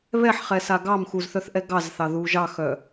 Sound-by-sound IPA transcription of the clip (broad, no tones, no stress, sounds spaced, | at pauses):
β ɛ ħ χ ɛ s a ɡ ɑ m x u z θ œ θ ʔ ɛ ɡ ɑ z θ ɑ ð u ʒ ɑ x œ